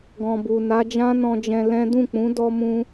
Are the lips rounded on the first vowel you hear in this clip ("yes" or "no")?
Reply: yes